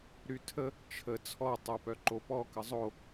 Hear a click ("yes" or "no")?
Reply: yes